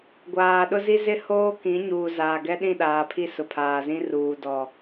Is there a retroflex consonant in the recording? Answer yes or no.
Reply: no